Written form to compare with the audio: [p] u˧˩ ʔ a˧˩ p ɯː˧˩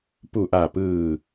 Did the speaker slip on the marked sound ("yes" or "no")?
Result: no